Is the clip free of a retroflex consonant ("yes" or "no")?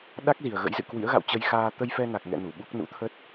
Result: yes